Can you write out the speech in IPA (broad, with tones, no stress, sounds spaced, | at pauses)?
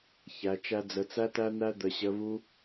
ç æ˧ t͡ʃ æ˦ d͡z ə˧ t͡s æ˦ t æ˦ n̪ æ˦ d̪ ə˧ ɕ ə˧ β u˦